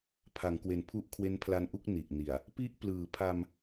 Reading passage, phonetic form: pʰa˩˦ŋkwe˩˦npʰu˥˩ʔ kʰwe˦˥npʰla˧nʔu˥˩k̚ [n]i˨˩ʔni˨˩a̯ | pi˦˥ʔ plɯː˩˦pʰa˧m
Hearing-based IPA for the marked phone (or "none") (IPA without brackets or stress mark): n